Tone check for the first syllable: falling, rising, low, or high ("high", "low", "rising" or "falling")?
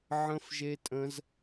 high